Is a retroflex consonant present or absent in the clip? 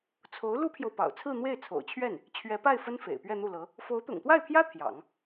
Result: absent